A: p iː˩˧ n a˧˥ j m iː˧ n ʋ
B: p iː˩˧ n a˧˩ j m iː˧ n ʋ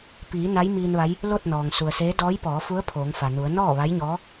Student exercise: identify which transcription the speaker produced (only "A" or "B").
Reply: A